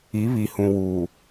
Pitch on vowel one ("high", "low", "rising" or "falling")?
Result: rising